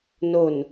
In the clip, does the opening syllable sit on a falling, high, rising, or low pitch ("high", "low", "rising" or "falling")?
low